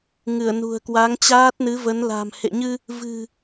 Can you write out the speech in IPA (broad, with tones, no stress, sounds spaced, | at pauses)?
ŋ ɨ˧˩ ə̯ n ṳ˨˩ ə̯ k w a˨˦ ŋ t͡ɕ aː˦˥ t̚ n ɨ˨˦ v ə˨˦ n l a̤ː˨˩ m h ḛ˧˨ ɲ ɨ˧ | v ɨ̤˨˩